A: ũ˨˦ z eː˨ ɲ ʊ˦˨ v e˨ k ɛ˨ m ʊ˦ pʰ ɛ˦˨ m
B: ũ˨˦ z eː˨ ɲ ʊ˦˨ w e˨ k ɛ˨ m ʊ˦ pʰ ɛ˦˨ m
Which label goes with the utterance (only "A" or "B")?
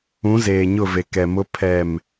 A